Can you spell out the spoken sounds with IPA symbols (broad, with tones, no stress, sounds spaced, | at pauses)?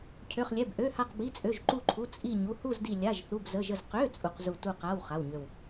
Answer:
cʰ ø˧˥˧ χ lʲ ɛ˧˥˧ b ʔ ø˧˥˧ h a˥˧ q b i˧˥˧ t͡sʼ ø˧˥˧ ʒ ǃ u˥˧ ǃʰ u˧˥˧ t͡sʼ i˥˧ ɲ u˧˥˧ h u˥˧ z d i˥˧ lʲ a˧˥˧ ʒ θ u˧˥˧ b z ə˧˥˧ ʒ ə˥˧ z q ø˧˥˧ t͡sʼ u˥˧ q z u˥˧ t u˥˧ q a˧˥˧ w χ a˧˥˧ w ɲ ø˥˧ w